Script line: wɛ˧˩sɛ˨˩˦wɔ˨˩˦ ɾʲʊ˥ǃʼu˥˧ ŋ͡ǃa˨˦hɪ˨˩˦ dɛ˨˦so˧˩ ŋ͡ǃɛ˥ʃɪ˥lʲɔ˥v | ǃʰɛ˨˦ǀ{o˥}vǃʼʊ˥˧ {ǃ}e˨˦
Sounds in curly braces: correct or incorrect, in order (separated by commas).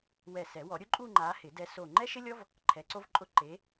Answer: correct, correct